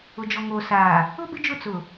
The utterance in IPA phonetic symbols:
ʊ˨d͡ʒɔ˨ ŋoː˨saː˨ | ʊ˦ bɪ˦d͡ʒʊ˦˨ t͡sʊ˨

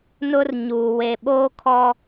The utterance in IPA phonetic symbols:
nʊ˦rɲuː˨ we˨ɓoː˦kʰɔ˦

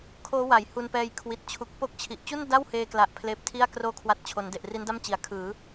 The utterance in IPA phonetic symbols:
kʰoː˦˥wa˩˦j hu˧npɛː˧j kʰwi˨˩t̚t͡ɕʰu˨˩k̚po˦˥k̚t͡ɕʰi˨˩ʔ t͡ɕu˥˩n da˥˩wheː˧kla˨˩ʔ pʰleː˦˥p̚tʰi˥˩a̯ kroː˥˩kʰwa˦˥t̚t͡ɕʰo˩˦nde˨˩ʔ ri˦˥nda˥˩mt͡ɕi˨˩a̯ kʰɯː˩˦

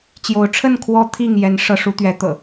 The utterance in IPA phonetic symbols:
t͡ɕjo˨˦ʊ̯ʈ͡ʂʰə˥˨n kʰwɔ˦t̪ʰi˥˨ŋ jɛ˨˦n ʂɤ˨˦ʂu˨˦t̪ɥɛ˨˦ t̪ɤ̰˨˩

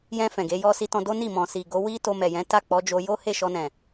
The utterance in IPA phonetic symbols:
jɛ̃˧ fɛ̃˨ɡe˨˦jɔ˦ si˦tɔ̃˦ do˦ni˦˨ mɔ̃˨ si˨ ɡo˨˦wi˦ to˧mɛ˨ jɛ̃˨˦ta˦˨k͡pɔ˨˦d͡ʒo˧ jo˦he˦˨ʃɔ˧nɛ̃˨

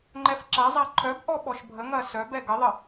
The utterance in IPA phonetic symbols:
ŋ͡ǃɛfǁazˤa ǃʰœbʔɔ ɓɔʃbʱəŋɐ sœb ɛɡəðˤə

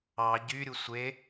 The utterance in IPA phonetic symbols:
ɑ ɟyɾʲu sʷe

